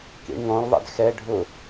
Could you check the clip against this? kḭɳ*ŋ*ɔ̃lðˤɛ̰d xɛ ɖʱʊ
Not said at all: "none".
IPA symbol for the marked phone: ŋ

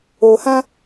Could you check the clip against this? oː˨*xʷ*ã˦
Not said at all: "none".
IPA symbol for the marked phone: h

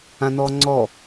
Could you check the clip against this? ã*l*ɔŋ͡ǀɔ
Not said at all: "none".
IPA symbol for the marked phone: n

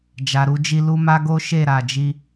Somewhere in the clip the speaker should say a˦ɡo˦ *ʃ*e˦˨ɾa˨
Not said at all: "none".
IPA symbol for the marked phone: ʃ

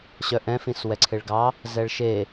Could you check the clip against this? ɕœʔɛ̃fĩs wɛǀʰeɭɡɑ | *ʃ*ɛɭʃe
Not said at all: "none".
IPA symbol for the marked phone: z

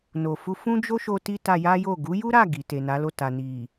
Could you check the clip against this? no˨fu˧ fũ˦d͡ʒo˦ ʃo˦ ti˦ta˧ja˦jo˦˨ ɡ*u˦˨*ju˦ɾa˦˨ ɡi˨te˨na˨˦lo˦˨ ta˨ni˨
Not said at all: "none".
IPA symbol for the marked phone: u˨˦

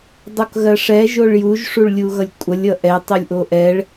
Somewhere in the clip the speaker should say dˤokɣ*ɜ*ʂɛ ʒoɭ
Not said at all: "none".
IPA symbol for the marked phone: ɜ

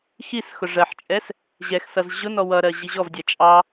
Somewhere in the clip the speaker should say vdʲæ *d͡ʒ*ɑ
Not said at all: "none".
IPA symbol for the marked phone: t͡ʃʼ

